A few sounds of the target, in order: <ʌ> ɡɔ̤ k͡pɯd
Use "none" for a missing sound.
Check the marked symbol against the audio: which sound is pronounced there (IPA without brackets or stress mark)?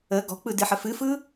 ə